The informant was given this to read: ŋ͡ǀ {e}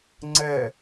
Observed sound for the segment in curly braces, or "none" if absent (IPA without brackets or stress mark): ɛ